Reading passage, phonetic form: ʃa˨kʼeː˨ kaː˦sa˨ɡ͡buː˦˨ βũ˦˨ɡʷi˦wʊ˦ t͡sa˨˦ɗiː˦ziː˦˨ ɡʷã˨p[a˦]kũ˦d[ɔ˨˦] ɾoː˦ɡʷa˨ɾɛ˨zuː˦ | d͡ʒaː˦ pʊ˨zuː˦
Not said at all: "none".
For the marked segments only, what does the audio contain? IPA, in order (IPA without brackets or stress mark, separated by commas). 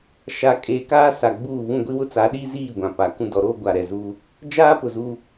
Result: a˨, ɔ˨˦